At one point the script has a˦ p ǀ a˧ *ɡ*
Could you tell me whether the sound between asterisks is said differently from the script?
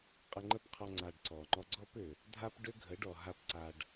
yes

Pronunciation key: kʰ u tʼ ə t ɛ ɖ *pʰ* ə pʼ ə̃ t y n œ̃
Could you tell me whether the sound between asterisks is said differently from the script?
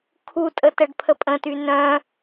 no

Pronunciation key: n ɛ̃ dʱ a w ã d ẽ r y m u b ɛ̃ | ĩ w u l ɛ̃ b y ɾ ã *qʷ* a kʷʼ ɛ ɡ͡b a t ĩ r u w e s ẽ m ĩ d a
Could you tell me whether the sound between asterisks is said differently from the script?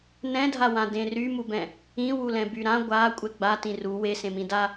yes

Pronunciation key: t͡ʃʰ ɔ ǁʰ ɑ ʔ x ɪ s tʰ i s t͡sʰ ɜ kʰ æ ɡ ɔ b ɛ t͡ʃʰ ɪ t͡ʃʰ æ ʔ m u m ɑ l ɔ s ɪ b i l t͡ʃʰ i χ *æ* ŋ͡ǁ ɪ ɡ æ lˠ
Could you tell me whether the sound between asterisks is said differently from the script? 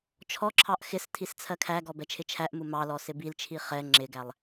yes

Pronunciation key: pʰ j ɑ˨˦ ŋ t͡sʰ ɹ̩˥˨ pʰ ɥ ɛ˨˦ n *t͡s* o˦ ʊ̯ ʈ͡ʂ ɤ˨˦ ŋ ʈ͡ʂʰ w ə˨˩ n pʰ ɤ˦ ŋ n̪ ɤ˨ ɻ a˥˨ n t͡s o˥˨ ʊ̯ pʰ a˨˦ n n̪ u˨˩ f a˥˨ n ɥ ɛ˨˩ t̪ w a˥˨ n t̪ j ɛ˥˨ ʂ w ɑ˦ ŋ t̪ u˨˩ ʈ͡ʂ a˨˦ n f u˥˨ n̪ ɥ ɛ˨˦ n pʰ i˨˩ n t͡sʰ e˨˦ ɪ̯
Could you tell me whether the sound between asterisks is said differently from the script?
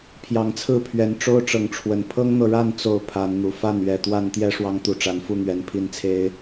yes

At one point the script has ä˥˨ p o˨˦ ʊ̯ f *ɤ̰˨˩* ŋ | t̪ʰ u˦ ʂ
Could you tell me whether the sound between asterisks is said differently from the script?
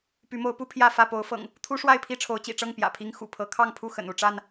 no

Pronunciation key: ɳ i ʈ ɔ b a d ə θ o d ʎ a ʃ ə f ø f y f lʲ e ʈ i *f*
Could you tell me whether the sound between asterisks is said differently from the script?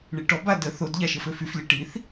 yes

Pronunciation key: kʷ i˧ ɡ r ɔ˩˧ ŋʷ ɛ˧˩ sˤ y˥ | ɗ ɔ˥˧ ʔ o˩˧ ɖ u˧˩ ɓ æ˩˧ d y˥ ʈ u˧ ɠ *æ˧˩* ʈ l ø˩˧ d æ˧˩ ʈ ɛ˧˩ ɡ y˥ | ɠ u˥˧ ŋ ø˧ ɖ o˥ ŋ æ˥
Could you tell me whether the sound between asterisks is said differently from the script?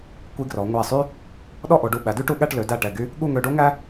yes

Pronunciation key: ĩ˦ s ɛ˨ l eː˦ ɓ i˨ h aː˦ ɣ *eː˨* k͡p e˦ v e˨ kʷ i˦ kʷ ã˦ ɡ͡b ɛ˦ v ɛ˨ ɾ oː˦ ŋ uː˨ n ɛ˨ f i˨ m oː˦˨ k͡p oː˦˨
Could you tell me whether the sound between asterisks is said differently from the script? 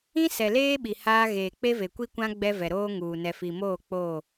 no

